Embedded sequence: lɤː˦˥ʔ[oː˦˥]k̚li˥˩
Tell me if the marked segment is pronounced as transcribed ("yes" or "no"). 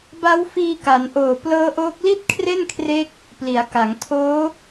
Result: yes